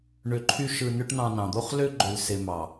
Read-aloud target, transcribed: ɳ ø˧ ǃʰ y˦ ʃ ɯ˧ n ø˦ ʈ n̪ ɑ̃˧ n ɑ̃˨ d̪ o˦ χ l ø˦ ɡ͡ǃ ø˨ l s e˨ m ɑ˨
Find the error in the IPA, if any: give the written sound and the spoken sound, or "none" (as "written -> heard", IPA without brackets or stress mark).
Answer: none